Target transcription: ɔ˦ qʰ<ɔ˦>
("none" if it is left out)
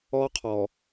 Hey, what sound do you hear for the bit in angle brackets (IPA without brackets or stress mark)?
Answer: ɔ˨